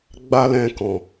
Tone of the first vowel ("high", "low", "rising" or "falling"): high